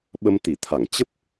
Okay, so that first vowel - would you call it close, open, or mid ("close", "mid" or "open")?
mid